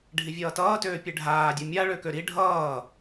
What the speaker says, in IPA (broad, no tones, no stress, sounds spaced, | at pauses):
ɖʱ i vʲ ʌː t ʌː t øː pʲ e ɖʱ aː dʲ o mʲ a ɭ ø k ø ɾ i ɖʱ ʌː